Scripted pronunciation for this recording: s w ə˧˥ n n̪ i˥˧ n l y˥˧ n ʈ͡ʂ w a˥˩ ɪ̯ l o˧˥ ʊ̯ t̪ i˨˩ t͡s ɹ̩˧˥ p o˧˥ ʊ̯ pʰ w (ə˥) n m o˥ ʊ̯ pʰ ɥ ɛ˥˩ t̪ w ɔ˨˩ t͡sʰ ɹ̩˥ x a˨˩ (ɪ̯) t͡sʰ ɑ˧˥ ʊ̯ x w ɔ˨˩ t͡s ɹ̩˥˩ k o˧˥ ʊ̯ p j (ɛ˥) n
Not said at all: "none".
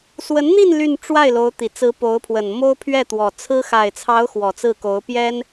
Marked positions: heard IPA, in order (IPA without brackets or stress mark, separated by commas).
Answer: ə˨˩, ɪ̯, ɛ˥